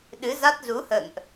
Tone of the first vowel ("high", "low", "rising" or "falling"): rising